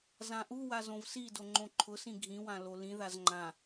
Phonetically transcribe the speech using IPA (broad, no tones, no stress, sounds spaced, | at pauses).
z ã ʔ u w a z õ v s i d o ŋ͡ǃ õ ǃʰ ʊ s ĩ ɡʱ ĩ w ã l o l ĩ ð a z ŋ͡ǃ ã